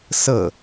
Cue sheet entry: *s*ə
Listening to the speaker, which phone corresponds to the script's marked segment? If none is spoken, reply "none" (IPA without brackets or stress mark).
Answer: s